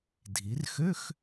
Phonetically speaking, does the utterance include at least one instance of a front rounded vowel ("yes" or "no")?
yes